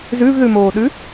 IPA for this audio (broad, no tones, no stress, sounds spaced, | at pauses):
z ʉ v ð ʉ m oː ɗ ʉ